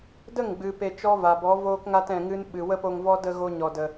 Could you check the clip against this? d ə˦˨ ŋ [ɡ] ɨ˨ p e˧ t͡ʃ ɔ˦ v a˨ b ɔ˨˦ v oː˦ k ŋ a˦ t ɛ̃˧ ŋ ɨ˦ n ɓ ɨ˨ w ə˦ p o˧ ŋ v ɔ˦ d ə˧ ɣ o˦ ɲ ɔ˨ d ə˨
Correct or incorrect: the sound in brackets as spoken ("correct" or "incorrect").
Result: incorrect